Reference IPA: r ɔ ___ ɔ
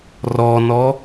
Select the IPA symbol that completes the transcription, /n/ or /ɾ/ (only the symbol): n